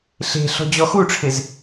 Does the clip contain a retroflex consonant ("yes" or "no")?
yes